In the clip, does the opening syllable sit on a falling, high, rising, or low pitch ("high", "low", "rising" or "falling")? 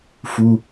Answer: high